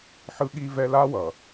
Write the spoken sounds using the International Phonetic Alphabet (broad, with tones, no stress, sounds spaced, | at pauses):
ħ ɯ˦ ɠ i˦ v ɛ˦ l a˦ w ʌ˨